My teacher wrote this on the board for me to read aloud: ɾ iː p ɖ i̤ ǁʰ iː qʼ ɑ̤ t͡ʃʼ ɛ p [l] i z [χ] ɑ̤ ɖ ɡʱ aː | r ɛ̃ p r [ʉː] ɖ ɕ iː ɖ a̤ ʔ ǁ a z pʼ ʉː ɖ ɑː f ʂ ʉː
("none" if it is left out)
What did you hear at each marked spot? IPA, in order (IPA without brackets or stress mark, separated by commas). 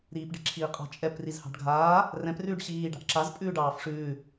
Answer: r, h, ʉː